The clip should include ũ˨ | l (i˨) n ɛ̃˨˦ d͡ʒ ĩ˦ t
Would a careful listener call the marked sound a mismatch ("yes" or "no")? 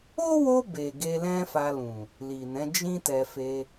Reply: no